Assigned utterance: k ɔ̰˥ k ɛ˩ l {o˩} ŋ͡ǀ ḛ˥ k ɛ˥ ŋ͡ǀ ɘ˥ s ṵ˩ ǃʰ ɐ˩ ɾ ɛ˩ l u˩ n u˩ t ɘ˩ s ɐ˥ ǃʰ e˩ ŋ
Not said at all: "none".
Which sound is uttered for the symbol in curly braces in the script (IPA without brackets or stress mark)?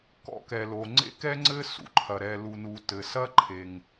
o˩